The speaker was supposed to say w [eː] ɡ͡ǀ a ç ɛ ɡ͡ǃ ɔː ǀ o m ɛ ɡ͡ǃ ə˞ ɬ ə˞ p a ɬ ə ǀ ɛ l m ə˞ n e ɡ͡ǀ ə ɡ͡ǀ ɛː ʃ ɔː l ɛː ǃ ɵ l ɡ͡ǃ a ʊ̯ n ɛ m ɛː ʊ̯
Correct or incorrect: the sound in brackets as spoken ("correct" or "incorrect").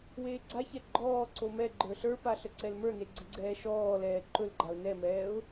correct